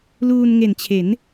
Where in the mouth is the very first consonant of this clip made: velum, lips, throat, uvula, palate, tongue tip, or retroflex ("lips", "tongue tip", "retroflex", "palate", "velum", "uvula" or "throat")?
tongue tip